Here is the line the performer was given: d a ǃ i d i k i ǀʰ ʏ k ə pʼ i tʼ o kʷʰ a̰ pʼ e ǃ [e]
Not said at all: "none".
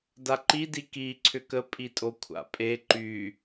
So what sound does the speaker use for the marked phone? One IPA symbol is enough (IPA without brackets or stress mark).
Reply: y